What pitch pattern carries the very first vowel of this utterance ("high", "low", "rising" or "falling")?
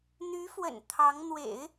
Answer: rising